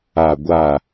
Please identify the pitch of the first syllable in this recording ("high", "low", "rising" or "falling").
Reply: low